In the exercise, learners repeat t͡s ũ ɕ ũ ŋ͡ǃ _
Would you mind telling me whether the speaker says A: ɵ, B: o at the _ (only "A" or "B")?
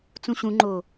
B